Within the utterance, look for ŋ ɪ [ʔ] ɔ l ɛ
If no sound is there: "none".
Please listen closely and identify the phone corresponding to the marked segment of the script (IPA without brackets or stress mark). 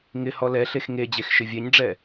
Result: h